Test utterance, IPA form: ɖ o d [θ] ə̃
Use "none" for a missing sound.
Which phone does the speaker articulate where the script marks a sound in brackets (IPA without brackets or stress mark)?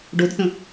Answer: θ